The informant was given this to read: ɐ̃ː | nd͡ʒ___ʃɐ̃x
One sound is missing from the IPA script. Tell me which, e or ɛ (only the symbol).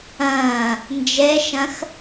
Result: ɛ